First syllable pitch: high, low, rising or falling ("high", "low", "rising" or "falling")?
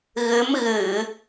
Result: rising